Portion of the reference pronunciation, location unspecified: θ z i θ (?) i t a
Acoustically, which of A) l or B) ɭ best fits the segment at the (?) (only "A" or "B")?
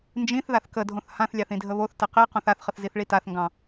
B